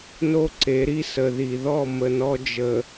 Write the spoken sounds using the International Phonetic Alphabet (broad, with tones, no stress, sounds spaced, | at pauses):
n o˦ ǀ e˨˦ ɾ i˦ s ə˨ ð i˨ ð ɔ˦˨ m ə˨ n ɔ˦ d͡ʒ ə˨